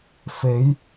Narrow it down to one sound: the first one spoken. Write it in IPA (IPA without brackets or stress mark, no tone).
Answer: f